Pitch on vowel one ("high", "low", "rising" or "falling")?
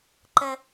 high